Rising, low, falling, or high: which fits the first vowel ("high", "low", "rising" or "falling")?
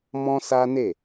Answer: high